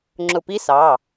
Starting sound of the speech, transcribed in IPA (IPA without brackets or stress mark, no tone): ŋ͡ǁ